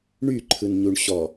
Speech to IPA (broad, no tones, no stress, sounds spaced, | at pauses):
ɳ y ǃʰ ɯ n ɲ u ɳ ɕ ɔ